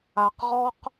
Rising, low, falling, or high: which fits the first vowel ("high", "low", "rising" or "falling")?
low